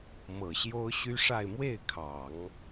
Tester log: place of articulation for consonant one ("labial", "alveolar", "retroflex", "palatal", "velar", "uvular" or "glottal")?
labial